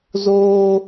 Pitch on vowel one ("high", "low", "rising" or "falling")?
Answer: low